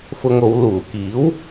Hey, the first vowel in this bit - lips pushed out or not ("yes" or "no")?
yes